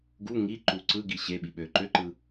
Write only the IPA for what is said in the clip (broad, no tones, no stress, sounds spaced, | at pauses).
ɡ u ŋ i ǃ u ǀ ɯ ɡ i ɕ e ɓ i ɓ ø ǃ ø ǃ ɯ